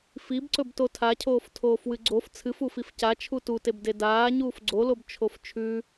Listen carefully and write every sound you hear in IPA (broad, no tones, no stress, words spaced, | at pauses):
fibǀɵb totʰacʰoːf tʰoːfwɨɡ͡ǀof t͡sʰɨfufif ca t͡ʃʰututeb dedaː ɲuːfɡ͡ǀolob t͡ʃʰoft͡ʃʰʉ